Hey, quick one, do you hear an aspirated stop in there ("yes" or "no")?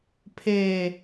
yes